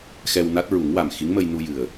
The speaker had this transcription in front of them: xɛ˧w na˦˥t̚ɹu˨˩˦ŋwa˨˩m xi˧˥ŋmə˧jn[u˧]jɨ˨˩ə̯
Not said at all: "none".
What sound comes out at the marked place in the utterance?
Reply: u˧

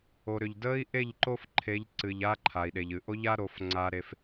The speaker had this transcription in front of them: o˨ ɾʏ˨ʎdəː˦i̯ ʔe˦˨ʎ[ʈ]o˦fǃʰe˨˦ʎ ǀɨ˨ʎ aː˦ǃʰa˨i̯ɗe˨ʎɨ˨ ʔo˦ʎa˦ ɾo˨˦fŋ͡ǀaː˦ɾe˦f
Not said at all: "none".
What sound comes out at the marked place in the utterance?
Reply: ǃ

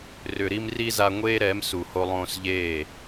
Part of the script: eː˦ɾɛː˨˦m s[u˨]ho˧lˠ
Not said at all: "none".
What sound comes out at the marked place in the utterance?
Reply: u˨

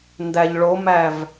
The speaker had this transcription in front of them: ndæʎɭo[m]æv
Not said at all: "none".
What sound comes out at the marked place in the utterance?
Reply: m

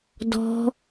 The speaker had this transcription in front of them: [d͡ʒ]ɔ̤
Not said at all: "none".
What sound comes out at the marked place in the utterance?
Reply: d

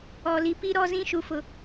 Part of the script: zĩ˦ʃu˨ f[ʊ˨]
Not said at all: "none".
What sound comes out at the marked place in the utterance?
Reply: ʊ˨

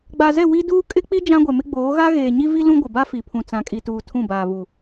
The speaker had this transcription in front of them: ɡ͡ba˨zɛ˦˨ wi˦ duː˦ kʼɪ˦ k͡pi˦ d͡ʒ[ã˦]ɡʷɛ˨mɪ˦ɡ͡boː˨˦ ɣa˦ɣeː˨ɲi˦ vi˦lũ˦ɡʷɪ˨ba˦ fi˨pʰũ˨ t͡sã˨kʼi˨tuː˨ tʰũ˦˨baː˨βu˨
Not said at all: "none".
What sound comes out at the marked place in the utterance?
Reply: ã˦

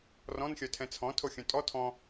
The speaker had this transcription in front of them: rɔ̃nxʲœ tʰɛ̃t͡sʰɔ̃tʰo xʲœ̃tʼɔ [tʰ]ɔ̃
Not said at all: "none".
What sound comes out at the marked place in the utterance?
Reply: tʰ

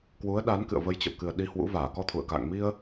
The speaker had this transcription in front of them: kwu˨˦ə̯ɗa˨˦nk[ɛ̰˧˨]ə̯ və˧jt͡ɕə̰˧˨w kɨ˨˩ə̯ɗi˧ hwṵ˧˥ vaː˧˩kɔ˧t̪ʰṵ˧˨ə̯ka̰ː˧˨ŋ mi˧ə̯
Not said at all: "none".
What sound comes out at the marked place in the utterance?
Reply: ɨ̰˧˨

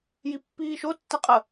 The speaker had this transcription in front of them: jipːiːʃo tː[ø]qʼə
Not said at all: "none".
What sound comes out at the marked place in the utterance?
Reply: ɛ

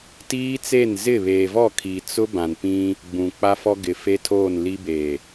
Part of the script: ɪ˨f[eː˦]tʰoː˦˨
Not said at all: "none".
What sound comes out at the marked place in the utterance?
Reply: e˦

